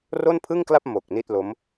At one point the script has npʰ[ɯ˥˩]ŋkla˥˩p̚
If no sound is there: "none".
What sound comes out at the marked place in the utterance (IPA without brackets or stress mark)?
ɯ˥˩